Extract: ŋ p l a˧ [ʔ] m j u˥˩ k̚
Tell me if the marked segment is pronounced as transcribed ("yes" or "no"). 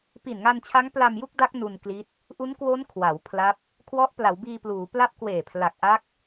no